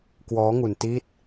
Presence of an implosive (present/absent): absent